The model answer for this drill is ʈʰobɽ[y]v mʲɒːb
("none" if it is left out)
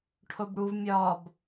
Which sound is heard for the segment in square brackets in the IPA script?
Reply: u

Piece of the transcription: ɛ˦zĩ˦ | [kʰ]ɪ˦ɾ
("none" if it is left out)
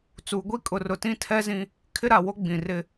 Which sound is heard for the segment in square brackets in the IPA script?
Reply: kʰ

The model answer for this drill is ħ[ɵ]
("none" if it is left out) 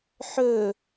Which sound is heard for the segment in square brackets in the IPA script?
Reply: ɵ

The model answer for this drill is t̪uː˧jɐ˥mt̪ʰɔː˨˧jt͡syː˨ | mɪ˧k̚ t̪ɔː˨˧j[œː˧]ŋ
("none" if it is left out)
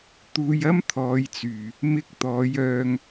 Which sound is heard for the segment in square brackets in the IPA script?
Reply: œː˧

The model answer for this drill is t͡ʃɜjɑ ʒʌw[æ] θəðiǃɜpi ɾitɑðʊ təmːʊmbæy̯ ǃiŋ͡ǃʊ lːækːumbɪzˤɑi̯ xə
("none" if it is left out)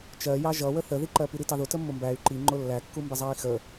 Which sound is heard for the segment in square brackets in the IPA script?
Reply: ə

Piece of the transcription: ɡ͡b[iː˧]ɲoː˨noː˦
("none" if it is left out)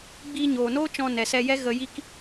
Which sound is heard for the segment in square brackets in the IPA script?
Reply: iː˧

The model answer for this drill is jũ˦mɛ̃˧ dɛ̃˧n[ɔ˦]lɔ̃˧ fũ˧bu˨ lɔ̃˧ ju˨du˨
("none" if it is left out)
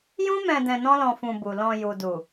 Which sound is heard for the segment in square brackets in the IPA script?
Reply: ɔ̃˦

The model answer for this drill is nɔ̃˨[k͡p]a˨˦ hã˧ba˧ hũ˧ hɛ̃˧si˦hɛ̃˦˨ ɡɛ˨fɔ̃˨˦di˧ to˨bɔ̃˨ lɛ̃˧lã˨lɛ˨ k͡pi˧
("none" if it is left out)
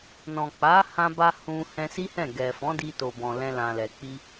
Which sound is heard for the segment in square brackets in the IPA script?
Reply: k͡p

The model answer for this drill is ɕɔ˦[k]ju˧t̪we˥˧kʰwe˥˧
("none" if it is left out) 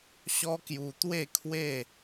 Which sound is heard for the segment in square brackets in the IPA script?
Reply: k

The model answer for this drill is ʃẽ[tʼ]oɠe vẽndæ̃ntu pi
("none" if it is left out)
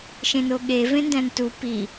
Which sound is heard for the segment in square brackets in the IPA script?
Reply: n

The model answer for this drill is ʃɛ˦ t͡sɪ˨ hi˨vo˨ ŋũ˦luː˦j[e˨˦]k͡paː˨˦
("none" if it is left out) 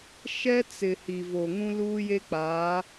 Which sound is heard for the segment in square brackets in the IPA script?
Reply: e˦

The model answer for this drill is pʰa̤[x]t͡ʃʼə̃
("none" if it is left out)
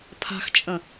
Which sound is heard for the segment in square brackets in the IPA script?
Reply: x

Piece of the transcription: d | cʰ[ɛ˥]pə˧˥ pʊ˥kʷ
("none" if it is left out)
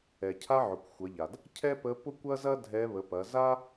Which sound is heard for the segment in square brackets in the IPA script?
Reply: ɛ˥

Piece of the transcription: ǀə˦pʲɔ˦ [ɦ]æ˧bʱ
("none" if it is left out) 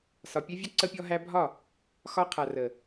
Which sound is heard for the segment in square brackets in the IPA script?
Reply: ɦ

